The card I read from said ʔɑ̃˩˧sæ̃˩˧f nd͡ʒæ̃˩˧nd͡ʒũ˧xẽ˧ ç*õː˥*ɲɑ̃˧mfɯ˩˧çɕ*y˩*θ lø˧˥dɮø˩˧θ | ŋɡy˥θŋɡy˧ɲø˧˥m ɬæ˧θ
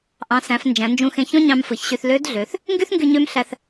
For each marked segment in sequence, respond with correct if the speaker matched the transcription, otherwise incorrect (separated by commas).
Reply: incorrect, incorrect